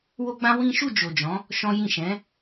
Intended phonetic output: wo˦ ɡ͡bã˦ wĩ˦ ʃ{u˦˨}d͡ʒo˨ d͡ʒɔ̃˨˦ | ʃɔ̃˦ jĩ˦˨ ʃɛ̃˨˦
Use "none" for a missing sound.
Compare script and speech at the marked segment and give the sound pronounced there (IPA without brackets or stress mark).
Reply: u˦˨